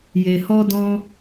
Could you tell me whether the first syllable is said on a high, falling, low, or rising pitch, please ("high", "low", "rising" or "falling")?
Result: low